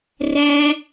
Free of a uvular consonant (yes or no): yes